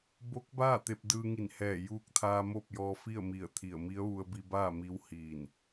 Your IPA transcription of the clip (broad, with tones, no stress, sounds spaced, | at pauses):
b o˧˥ k̚ b aː˥˨ t̪ e˧ p̚ d ɯː˧ ŋ i˧˩ n h ɛː˧˩ j uː˧ k̚ t̪ʰ aː˧ m o˥˨ p̚ j ɔː˧ f i˥˨ ə̯ m i˧˩ ə̯ t̪ʰ i˧˩ ə̯ m i˧˥ ə̯ ʋ u˧ ə̯ b i˧ b aː˥˨ m i˧˥ w h iː˧˩ n